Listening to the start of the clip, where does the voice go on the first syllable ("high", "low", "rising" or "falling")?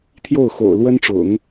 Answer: falling